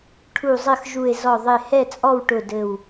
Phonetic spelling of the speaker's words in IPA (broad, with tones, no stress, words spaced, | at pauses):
ʈʰu˧˩zˤɘ˥˨xʒu˧˩e̯ zɔ˧˩ðˤɪ˧˩ hɛ˥˨t͡sʼɔ˥˨wʈʊ˧˩ dɘ˧˩w